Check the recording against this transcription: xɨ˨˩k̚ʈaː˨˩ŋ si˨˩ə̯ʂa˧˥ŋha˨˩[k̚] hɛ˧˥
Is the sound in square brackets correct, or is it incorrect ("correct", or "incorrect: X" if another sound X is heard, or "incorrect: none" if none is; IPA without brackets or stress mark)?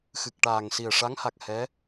correct